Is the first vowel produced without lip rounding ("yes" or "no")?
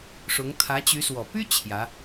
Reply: no